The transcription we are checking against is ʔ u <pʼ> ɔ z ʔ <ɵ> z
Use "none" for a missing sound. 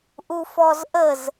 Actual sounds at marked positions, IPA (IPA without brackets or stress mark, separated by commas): f, ə